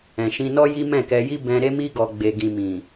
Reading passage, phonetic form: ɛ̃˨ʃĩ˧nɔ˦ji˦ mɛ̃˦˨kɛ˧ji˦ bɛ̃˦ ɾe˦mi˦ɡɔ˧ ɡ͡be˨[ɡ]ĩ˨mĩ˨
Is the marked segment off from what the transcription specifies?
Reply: no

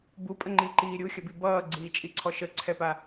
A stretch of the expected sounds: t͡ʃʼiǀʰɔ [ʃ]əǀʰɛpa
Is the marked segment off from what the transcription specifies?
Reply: no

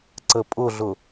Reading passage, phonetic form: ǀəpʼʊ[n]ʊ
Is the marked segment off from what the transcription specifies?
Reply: yes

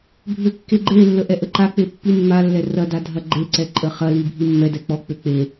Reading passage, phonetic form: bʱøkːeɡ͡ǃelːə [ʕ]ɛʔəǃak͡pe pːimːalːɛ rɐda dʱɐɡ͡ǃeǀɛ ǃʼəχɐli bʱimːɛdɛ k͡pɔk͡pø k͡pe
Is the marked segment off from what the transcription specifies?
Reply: yes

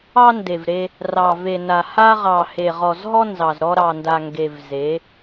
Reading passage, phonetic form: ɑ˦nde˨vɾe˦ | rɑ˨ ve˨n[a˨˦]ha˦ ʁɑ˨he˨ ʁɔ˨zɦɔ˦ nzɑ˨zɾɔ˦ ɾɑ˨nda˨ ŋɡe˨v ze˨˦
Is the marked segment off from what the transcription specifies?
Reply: yes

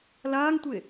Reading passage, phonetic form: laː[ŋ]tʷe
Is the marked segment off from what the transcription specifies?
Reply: no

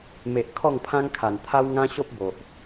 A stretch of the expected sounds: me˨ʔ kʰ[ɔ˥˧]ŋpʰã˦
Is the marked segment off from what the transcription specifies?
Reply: no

